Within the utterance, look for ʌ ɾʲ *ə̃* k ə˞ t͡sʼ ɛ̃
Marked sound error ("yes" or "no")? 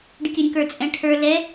no